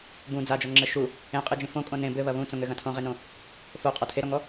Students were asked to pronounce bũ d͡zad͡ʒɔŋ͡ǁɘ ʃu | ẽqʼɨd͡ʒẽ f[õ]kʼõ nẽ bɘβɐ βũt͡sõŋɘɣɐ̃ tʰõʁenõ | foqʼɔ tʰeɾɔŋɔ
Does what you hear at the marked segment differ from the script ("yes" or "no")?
no